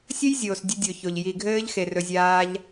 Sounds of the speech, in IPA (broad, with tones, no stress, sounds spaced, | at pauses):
sʲ ɘ˦ j zʲ oː˨ s dʲ ɘ˧ dʲ o˨ ç o˨ ʎ j i˨ ɡʱ ɘː˦ ʎ x e˨ r ɵ˧ zʲ aː˦ ʎ